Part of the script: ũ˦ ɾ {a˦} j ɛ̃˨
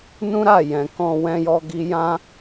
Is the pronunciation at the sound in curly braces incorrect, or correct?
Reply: incorrect